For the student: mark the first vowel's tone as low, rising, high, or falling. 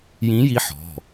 rising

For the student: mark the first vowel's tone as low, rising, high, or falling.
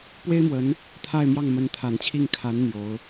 high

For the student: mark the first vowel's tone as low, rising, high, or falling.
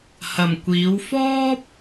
low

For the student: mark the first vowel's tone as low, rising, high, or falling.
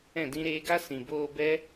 falling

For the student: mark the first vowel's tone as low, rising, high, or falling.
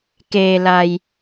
low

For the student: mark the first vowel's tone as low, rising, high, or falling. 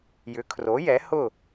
rising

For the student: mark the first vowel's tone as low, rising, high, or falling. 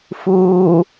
low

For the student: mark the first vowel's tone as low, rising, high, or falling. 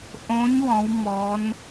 rising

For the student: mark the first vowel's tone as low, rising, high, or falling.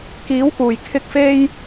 rising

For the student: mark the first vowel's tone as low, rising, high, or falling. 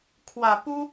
low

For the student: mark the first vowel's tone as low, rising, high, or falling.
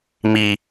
high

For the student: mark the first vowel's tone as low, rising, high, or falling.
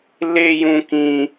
high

